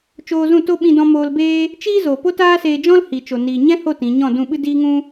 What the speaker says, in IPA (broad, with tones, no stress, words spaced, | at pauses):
t͡ʃoː˧zũ˦˨to˦ ɓĩ˧dɔ̃˧moː˧lbeː˦ | t͡ʃiː˦zo˨ po˦taː˦seː˧d͡ʒɔ̃˦l hi˨t͡ʃo˨ niː˨ɲɛ̃˦ho˦˨ tĩ˨˦ ɲɔ̃˦˨ dũ˦˨ɓɨ˦ diː˦ŋũ˦